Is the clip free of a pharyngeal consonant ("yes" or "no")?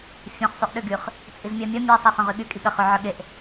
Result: no